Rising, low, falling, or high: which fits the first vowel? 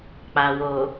low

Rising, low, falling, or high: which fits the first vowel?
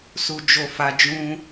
low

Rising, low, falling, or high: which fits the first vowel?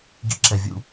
rising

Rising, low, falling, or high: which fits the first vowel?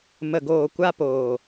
low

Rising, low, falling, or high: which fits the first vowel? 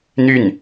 falling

